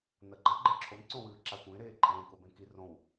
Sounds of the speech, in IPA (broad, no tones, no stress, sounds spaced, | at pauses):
n ɐ ɡ͡ǃ ɐ ɡ͡ǃ e ǁʰ o n ǀ õ w ɨː ǁ a kʷ ẽ ɾ eː ǃʼ ẽ k o b ẽ k i r õ w